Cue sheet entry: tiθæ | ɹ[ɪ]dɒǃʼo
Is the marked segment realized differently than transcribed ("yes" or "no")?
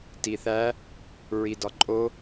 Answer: yes